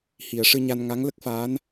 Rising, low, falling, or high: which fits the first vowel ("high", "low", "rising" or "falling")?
low